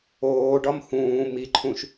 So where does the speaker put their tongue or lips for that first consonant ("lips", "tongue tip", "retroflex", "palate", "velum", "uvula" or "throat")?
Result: retroflex